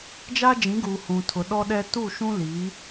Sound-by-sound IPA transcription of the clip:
d͡ʒa˦ d͡ʒĩ˨˦ɡuː˨ hũ˨tʰʊ˨ ɗɔ˦ɗɛ˦ tu˦˨ʃũ˦liː˨˦

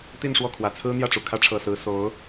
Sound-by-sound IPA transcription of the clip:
t̪i˥˧nʂwɔ˥˩ kʰwä˨˩t͡sʰɹ̩˥n̪jä˥˩ʈ͡ʂu˨˩ kʰä˥ʈ͡ʂʰɤ˨˩sɹ̩˧˥ so˧˥ʊ̯

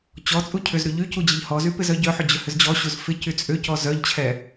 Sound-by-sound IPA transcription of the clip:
t͡ɕɔt͡sʼu cʰʏzɾy ʎy cud͡ʑɪʎhɔzy pɪzœɟœħʏ d͡ʑʏhʏzd͡ʑɔɕuz fɪ cyt͡sʼʏcɔ zœʎt͡ɕʰɛ

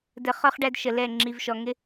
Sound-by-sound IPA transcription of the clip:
də˨χɒ˦χ ɖæ˦dʃə˨lɛ˦˨ ŋ͡ǁi˨vʃɔ˨ŋɪ˦

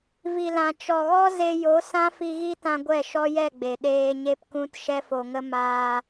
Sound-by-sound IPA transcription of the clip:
vi˨lã˨ t͡ʃɔ˨ɣɔ˦ ze˧jo˨˦ sã˦fi˧ɣi˦tã˧ ɡʷɛ˦˨ ʃɔ˦jɛ˦˨ ɡ͡be˨ ɗeː˧ɲe˦pkũ˦t ʃɛ˦fo˧ŋə˦ maː˧

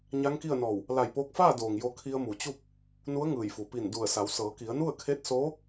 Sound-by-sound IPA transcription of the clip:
ɲa˧˥ŋki˥˨ə̯nɔː˧˩w | la˧˩jpoː˧k̚faː˥˨doː˩ŋ jo˧kʰi˧ə̯mu˩t͡ɕu˥˨p̚ | nu˧˥ə̯ŋɯː˧˩jfu˩ pi˧˩ndu˧˩ə̯sa˩˧w sɤː˩˧ki˩˧ə̯nu˥˨ə̯kʰe˧˥t̚ soː˧˥

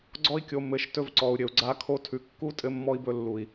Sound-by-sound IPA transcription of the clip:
ɡ͡ǀɔ˧i̯kʲo˨ mɘ˨ʃ tɵ˧vǀɔ˨u̯ ɾʲɘ˨u̯ɡ͡ǀa˧ kʰo˧tʰʉ˨ kːu˦tʼɘ˧mːɔ˧i̯bɵ˧ lːu˨i̯

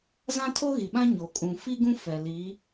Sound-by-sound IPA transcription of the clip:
zã˦tʰo˦ɣi˨ɓã˦ ɲo˨ kʼũ˨ fi˦ɡũ˦ fɛ˨li˨˦

